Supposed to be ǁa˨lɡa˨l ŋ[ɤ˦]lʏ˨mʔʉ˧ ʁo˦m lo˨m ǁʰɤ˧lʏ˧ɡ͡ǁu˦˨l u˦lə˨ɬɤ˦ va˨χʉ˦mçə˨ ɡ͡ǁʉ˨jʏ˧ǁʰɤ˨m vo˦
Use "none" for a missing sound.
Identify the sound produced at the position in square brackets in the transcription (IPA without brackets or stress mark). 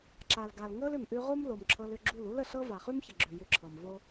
ɤ˦